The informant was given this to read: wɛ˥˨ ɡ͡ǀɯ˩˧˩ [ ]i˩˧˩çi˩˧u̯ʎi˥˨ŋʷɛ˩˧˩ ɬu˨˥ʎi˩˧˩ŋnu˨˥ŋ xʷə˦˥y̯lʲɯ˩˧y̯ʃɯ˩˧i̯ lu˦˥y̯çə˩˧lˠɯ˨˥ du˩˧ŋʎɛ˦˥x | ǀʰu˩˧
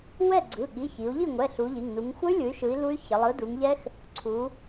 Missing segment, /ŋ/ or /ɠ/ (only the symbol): ɠ